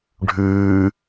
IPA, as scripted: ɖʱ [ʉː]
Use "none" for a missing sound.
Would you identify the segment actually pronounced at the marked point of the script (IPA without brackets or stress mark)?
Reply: ʉː